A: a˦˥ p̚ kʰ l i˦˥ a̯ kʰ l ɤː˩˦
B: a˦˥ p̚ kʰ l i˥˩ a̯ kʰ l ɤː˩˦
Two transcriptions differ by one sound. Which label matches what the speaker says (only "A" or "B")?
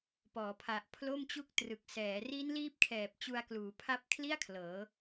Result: B